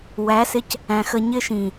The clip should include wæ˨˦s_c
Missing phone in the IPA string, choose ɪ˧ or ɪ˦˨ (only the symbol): ɪ˧